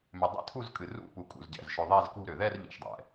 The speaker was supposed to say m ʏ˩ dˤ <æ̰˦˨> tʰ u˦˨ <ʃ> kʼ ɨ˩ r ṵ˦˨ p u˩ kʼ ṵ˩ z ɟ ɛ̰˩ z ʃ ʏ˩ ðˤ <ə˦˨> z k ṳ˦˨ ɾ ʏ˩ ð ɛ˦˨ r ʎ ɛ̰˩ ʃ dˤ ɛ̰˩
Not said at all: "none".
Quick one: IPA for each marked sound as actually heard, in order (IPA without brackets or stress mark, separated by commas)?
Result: ɛ̰˦˨, z, ɛ˦˨